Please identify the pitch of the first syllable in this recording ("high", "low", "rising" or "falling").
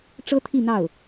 high